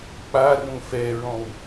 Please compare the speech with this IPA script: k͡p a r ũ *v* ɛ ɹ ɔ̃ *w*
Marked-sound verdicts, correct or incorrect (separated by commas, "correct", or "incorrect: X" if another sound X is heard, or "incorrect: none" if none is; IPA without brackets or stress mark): incorrect: f, correct